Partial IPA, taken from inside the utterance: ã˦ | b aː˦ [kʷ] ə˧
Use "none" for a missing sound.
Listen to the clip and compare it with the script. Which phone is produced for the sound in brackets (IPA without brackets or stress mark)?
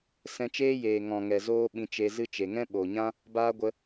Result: ɡʷ